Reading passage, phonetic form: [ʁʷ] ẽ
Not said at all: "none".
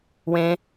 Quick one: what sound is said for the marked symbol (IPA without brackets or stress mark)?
w